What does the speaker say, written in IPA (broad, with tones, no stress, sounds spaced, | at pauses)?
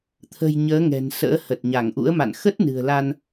t̪ʰ ə̤˨˩ j ɲ əː˨˦ ŋ ɛ̤˨˩ n s ə̰ː˧˥ h ə˨˩ t̚ ɲ a˧˩ ŋ ʔ ṵ˧˥ ə̯ m a̰˧˨ n x ə˦˥ t̚ n ɨ̤˨˩ ə̯ l a˧ n